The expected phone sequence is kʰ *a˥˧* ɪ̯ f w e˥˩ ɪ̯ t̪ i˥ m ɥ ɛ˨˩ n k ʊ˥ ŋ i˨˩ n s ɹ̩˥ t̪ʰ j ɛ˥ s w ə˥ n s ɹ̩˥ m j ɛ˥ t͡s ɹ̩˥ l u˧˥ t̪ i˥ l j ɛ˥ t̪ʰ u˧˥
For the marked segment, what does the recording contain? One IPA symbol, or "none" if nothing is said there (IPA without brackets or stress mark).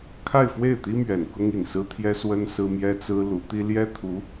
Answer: a˥˧